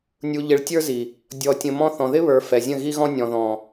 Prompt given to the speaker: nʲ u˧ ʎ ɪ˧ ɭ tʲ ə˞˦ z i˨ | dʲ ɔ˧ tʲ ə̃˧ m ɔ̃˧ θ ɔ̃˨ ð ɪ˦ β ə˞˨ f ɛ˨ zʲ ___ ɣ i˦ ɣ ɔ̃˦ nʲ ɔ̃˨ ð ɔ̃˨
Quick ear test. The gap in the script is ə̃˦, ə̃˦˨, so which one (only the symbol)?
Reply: ə̃˦˨